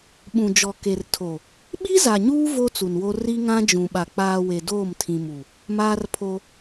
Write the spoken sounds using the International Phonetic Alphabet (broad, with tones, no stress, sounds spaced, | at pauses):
ɓ ũ˨ d͡ʒ ɔ˨ k e˨ r tʰ o˨ | ɓ i˦ z a˨ ɲ uː˦ v o˦ t͡s u˨ n w o˦ r i˦ ŋ ã˦ d͡ʒ ũ˨ ɓ a˨ k͡p aː˨ w e˨ d oː˦˨ m tʰ ĩ˨ m u˨ | m aː˦ r pʰ o˦